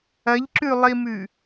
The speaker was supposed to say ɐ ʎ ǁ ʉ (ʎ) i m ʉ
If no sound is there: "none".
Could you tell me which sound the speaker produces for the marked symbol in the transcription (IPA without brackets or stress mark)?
lˠ